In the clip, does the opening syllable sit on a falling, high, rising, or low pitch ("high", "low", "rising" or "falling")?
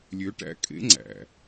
rising